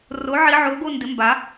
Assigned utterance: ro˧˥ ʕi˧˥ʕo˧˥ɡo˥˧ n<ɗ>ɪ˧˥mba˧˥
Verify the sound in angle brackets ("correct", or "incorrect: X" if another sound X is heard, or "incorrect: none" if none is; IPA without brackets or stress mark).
incorrect: d